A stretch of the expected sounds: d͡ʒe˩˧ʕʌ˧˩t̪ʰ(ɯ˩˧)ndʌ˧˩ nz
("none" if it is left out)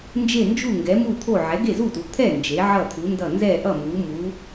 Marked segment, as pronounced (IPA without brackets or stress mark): u˩˧